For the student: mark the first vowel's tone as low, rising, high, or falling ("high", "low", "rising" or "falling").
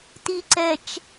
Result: low